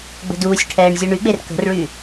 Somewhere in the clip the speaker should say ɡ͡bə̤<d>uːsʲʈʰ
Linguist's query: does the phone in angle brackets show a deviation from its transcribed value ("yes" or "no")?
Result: no